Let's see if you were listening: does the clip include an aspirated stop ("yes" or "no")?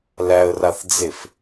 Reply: no